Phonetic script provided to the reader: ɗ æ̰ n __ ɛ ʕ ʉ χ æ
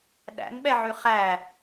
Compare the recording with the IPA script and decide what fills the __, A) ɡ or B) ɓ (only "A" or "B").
B